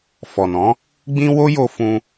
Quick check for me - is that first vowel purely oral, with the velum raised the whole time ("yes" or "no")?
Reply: yes